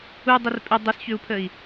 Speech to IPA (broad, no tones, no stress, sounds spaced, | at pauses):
u dˤ ə r pʼ ʏ dˤ ʊ s ç ʏ u̯ pʰ ə i̯